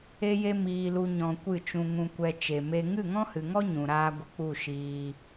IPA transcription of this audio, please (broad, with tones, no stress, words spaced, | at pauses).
e˦je˦miː˧lu˧ ɲɔ̃˧ kʷɨ˦˨t͡ʃũ˧ŋũ˧kʷɛ˧ t͡ʃe˨me˧ ŋɨ˦˨ŋɔ̃˦hɨ˨ŋɔ˦ ɲũ˨ɾaː˦ ɡʷə˧k͡pu˦˨ ʃiː˧